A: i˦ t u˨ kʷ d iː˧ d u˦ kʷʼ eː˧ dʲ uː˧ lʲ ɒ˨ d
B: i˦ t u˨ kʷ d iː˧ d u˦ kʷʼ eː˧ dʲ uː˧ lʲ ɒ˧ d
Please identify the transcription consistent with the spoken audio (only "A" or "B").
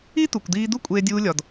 A